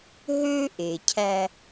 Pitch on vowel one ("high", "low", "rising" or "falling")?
high